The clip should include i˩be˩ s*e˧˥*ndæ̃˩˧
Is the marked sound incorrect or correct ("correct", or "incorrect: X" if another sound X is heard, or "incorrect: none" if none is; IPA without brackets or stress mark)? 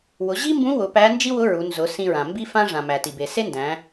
incorrect: e˥